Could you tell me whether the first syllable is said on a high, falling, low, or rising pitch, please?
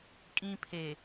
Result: high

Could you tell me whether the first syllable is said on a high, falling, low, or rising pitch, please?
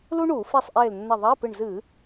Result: high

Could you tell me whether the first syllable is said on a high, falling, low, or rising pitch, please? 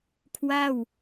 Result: falling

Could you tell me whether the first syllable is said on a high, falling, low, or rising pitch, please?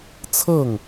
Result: falling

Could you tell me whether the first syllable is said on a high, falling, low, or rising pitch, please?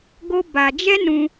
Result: high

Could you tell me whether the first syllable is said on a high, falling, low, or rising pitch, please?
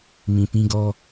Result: low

